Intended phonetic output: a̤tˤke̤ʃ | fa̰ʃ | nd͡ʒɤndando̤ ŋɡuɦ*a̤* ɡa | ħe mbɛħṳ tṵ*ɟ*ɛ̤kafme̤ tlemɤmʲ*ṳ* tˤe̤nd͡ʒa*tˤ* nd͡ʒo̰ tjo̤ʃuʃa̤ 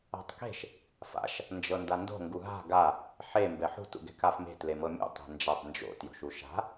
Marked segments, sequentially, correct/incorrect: correct, incorrect, incorrect, correct

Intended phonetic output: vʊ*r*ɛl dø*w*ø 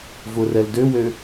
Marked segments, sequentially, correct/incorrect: correct, correct

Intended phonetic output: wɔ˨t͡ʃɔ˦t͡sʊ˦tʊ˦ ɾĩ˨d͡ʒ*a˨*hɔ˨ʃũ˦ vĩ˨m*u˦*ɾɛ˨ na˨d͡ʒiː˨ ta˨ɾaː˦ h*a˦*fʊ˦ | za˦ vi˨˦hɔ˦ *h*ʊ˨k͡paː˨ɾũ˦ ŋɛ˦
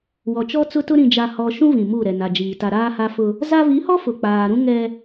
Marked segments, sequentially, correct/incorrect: correct, incorrect, correct, incorrect

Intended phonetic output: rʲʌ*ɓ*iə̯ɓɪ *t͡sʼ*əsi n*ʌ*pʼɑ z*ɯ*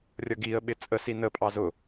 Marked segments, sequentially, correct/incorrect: incorrect, correct, incorrect, incorrect

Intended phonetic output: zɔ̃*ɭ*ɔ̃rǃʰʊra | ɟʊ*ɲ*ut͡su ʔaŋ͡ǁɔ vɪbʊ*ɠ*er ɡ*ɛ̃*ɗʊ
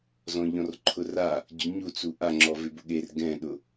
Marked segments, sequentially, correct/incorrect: incorrect, correct, correct, correct

